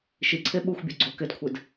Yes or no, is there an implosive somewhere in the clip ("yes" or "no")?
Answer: yes